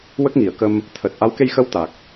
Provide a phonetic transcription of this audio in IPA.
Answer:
w ə˦˥ k̚ ŋ i˨˩˨ ə̯ k ə˧ m | t̪ʰ əː˨˩ t̚ ʔ a˧˥ w k e˧ j x ə˧˥ w t̪ a˨˩ k̚

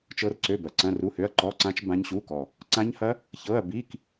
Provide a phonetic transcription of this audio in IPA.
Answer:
t͡ʃ ɤ˦˥ r ǀ ø˧˥˧ b ɐ˨˩ ǀ ɐ̃˧˥˧ r u˧˥˧ h ø˧˥˧ ɐ̯ ǃ ɔ˧˥˧ ǀ ã˦˥ t͡ʃ b ã˦˥ ɲ ɕ u˧˥˧ k ɔ˨˩ | ǀ ã˦˥ ɲ h ɐ˦˥ | ç ɤ˧˥˧ ɐ̯ b i˧˥˧ k

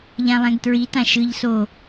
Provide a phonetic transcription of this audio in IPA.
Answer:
ʎ ã lˠ ɛ̃ ɡ t ɹ i t ã ʃ ɯ ʎ s o

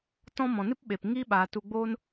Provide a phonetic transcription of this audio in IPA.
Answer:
t ɔ̃˦ m ɔ̃˨ n ɨ˦ p ɓ e˨ p ŋ iː˦ ɓ aː˨ t u˧ ɡ͡b oː˦ n

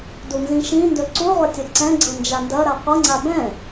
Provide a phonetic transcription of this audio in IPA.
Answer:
d u n z ĩ ʃ ĩ n d ɵ ǀ u ʁʷ ʌ tʲ ɤ ǀ ɛ̃ ɡ͡ǀ ɤ n d͡ʒ a n d ɐ ɾ a qʷ ʌ ŋ͡ǀ a b ɛ̃

